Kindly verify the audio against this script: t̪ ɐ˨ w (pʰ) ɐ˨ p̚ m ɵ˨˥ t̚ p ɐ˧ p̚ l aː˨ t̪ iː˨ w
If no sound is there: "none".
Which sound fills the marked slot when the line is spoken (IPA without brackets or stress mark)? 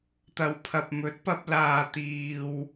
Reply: pʰ